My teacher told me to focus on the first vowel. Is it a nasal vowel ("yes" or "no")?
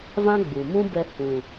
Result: yes